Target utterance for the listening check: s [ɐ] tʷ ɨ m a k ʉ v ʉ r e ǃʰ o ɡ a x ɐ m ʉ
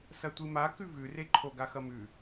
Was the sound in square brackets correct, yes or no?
yes